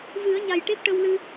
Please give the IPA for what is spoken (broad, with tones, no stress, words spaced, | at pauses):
vɨ˨˩˦ə̯ɲa˨˩j ʈe˦˥p̚ʈə˧wlɨ˧